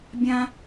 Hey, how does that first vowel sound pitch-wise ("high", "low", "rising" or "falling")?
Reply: low